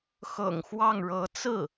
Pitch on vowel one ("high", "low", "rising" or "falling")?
low